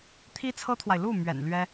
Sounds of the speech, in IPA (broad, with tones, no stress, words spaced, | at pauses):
t̪ʰi˥t͡sʰɤ˥t̪ʰwa˨ɪ̯ lu˥˩mɥɛ̰˨˩n lɥɛ˥